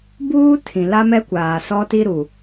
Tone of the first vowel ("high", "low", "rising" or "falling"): high